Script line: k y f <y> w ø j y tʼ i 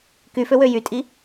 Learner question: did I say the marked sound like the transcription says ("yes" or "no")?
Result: no